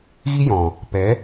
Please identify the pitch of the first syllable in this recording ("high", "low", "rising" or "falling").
high